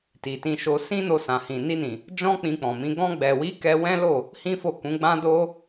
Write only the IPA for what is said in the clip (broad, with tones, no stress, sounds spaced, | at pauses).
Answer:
t i˨ t ĩ˧ ʃ o˧ s ĩ˦ n o˧ s ã˨ h ĩ˨ n i˧ n ĩ˨ | d͡ʒ ɔ̃˦ k͡p ĩ˧ k͡p ɔ̃˨ m ĩ˨˦ ɡ ɔ̃˧ ɡ͡b ɛ˨ w i˨˦ k ɛ˦ w ɛ̃˦ l o˦˨ | h ĩ˦ f o˦˨ k ũ˨˦ ɡ͡b ã˦ d o˦